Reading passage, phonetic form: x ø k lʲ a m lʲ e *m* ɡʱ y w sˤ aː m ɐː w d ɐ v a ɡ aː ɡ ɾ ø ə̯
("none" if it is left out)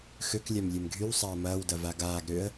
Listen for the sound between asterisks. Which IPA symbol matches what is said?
m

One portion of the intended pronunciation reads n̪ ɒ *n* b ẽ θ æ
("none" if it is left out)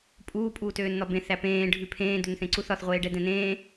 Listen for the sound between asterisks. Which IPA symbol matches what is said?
none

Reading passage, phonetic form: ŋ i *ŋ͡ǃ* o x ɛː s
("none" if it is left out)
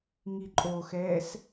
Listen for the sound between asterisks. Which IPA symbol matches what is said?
ǃʼ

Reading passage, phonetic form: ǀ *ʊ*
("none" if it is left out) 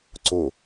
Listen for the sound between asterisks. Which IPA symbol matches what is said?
ʊ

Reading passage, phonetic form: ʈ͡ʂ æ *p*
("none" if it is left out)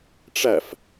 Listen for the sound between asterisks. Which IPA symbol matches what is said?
f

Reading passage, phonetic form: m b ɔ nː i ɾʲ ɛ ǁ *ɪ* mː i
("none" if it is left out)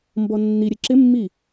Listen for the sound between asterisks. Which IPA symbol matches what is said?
ɪ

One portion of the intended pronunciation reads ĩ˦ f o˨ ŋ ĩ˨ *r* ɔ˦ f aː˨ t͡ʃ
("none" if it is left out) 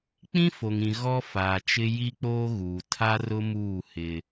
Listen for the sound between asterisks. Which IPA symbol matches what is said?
ɣ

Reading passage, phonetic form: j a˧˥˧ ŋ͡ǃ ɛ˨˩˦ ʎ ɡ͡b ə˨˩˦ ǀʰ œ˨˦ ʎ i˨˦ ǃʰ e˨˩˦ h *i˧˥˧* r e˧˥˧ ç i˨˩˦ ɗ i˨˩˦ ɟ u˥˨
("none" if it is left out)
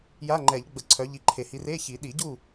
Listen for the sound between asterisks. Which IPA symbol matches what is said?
i˨˦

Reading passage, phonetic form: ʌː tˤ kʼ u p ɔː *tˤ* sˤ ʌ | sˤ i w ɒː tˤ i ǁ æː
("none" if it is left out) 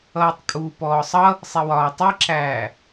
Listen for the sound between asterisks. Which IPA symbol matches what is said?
none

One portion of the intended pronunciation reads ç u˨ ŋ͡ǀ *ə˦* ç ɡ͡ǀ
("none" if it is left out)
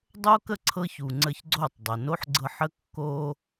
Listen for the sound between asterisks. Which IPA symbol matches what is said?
ə˦˨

